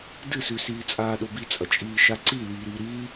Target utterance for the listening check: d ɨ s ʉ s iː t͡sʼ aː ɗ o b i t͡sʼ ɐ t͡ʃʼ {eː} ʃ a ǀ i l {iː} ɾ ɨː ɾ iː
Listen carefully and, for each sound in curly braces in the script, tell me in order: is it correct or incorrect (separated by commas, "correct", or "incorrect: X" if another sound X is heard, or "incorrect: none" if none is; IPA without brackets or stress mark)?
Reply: incorrect: iː, correct